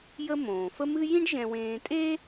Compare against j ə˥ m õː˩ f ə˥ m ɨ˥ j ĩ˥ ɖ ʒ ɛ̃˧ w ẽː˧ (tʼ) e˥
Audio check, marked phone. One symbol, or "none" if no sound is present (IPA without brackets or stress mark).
tʼ